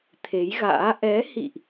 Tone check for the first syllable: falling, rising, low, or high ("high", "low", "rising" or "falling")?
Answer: rising